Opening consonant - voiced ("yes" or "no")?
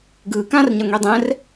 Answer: yes